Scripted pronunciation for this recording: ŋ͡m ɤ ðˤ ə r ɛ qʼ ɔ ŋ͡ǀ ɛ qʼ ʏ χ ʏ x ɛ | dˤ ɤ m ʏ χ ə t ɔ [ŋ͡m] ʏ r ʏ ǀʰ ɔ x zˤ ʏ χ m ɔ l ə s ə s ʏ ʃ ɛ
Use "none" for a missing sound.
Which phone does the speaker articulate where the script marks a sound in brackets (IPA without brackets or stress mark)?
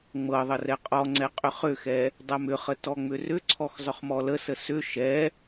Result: ŋ͡m